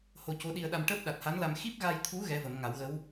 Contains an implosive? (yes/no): yes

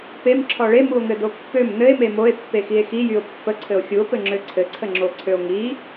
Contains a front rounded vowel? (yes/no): yes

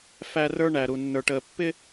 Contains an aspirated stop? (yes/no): no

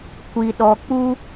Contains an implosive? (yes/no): yes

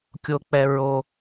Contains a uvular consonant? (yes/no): no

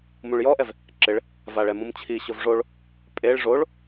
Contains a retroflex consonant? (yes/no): yes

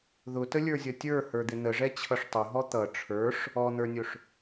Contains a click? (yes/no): no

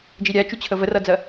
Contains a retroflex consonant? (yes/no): no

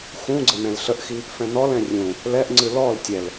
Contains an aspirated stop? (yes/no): no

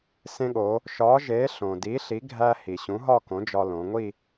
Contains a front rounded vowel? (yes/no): no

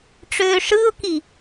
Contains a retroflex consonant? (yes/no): yes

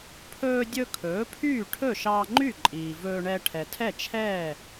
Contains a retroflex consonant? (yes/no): yes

